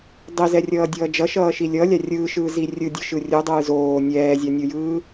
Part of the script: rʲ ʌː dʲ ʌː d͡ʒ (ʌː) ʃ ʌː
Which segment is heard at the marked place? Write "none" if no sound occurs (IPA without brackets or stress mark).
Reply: ʌ